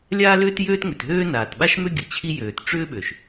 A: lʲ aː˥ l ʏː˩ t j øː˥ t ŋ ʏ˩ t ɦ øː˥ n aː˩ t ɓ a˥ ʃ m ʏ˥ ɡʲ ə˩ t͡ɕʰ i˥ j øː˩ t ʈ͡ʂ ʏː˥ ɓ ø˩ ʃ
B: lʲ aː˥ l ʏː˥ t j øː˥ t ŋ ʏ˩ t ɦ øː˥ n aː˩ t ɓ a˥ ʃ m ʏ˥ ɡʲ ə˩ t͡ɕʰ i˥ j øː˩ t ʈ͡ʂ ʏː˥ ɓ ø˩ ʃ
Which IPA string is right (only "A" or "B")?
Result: B